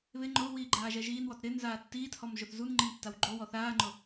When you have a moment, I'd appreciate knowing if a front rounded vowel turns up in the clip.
no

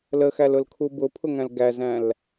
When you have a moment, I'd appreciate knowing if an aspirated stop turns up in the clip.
yes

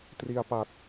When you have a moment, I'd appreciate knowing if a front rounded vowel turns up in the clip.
no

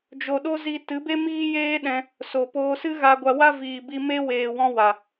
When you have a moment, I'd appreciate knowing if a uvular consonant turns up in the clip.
no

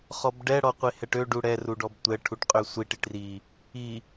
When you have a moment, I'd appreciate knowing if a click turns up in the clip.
no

